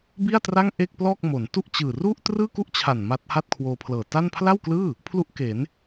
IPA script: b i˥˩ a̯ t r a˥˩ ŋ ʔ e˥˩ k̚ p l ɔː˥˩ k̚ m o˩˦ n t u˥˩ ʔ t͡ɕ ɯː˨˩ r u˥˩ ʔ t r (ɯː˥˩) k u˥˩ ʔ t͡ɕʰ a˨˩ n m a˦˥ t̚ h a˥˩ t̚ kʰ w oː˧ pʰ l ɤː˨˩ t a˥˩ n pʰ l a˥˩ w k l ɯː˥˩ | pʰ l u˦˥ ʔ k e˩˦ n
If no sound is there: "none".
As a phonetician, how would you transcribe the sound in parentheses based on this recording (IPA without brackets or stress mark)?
ɯː˥˩